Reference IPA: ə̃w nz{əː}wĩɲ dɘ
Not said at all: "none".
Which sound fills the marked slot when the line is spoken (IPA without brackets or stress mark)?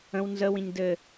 ə